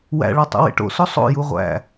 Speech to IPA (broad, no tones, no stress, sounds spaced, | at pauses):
w æ̰ ɭ ɒ tˤ ṵ w ḛ ʈ o̰ s o sˤ o̰ j u ʁʷ æ̰